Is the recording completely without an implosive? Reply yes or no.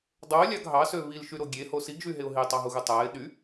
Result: no